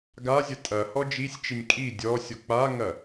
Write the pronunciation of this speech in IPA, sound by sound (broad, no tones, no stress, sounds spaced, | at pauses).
ɡ a zʲ ɐ tʼ ɐ h ɔ d͡ʒ i sʲ t͡ʃ i nʲ kʼ i dʲ ɔ sʲ ɔ k͡p a ŋ ɐ